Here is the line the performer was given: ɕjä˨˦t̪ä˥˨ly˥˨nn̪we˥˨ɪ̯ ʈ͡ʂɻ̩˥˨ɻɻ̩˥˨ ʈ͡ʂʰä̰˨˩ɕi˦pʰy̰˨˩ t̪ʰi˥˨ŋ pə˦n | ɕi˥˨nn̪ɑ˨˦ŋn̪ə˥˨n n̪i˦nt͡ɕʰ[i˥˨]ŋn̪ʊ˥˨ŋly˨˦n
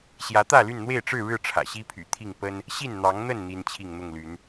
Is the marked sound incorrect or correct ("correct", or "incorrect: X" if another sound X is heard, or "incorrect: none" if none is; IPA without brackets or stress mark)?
correct